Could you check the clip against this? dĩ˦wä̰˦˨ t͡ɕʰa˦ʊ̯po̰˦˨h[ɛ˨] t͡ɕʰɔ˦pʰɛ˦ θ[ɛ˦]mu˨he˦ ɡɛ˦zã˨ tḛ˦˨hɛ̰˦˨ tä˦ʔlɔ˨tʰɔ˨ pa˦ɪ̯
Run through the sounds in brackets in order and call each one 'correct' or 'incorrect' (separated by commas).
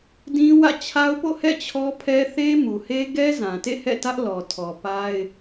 incorrect, incorrect